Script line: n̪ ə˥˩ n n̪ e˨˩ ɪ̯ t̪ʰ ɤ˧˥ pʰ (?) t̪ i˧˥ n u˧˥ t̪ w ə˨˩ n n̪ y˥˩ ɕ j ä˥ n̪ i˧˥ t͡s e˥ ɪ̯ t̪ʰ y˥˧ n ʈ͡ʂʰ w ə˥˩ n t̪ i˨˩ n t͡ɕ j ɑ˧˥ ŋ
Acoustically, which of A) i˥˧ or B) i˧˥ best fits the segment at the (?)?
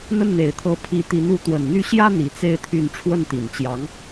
B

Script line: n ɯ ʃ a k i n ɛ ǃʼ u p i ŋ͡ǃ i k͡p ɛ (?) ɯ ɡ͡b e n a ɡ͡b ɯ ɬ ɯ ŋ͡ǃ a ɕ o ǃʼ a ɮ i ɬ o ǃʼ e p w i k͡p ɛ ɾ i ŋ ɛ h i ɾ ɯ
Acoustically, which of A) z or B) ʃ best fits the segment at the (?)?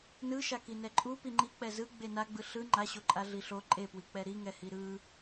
A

